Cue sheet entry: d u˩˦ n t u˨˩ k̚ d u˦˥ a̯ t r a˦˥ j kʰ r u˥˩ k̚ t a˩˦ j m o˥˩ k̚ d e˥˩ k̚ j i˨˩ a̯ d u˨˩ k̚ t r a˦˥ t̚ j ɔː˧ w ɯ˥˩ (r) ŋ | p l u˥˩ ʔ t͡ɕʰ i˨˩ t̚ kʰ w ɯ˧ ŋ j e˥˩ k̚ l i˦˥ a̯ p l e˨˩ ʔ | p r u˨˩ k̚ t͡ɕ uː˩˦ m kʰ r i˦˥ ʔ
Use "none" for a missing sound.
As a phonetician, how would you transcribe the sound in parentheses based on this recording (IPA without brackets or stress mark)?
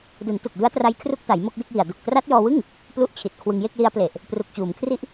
none